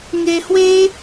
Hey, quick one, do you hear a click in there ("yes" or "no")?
no